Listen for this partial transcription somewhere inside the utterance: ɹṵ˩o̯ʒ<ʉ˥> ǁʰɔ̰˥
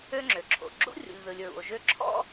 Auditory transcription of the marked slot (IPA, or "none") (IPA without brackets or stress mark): ø˥